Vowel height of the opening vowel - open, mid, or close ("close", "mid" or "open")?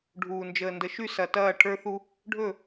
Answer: close